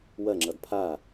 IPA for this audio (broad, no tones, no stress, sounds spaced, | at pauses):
w ɐ ŋ͡ǁ ʌ d pʰ a